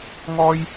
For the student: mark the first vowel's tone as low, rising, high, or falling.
high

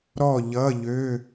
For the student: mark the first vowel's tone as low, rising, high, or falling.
falling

